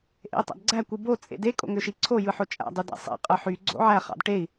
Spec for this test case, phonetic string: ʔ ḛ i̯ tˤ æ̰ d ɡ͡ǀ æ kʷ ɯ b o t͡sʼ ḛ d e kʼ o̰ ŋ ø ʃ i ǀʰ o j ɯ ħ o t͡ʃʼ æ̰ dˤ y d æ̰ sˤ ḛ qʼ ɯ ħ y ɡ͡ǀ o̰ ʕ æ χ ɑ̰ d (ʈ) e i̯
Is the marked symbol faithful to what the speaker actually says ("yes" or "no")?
yes